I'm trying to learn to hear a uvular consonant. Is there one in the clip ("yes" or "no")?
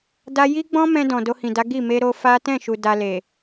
no